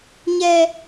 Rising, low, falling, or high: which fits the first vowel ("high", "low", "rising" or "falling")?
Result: high